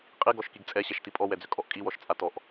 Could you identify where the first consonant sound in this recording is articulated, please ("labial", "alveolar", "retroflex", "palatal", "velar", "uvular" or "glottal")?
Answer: uvular